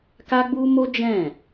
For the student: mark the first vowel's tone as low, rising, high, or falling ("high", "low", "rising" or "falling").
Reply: high